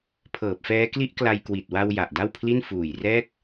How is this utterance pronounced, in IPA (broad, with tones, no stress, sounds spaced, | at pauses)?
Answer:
pʰ ɤː˨˩ p̚ f ɛː˦˥ k l i˦˥ ʔ k l a˧ j k w i˨˩ t̚ w a˧ w j a˨˩ ʔ d a˥˩ w pʰ l i˥˩ n f uː˨˩ j r ɛː˦˥ k̚